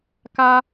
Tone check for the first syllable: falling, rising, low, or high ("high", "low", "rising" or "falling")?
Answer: high